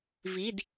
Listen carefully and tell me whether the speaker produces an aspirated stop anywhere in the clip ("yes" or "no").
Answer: no